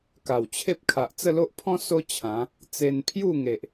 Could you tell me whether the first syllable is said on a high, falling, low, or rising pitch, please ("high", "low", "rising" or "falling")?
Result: low